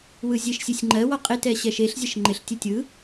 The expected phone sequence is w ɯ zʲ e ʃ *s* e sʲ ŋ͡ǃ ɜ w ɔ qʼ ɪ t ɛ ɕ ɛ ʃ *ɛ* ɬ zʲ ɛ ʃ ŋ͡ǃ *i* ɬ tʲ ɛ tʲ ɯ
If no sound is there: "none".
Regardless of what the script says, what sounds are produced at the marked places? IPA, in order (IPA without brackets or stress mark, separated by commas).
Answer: sʲ, e, ɪ